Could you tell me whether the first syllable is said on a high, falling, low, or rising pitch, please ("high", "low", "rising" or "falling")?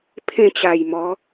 falling